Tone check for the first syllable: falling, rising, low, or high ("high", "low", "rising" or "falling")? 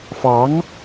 rising